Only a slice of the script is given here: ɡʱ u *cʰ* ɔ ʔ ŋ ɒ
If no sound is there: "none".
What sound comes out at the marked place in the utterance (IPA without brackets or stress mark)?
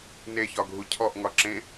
cʰ